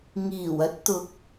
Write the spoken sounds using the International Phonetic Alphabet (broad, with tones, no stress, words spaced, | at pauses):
ŋiː˨˩wɐ˨˥t̚t̪ʊ˨k̚